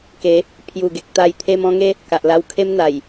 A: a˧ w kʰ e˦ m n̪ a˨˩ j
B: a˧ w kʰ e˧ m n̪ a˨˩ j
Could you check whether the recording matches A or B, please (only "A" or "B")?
A